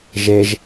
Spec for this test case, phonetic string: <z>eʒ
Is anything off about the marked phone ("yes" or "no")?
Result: yes